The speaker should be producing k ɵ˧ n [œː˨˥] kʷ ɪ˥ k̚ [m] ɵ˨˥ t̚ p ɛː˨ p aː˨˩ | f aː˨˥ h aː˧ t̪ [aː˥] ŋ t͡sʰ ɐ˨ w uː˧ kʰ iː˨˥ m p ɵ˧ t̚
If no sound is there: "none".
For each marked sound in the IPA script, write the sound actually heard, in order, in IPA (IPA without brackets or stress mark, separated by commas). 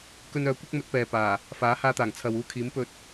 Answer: œː˨˥, m, aː˨˩